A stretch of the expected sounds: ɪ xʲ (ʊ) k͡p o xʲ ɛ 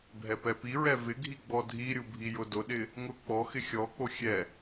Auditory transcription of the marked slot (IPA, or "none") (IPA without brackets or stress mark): ɔ